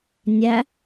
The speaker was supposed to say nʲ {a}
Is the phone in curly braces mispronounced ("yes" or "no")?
yes